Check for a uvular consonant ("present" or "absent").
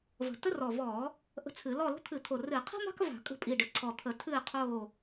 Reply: present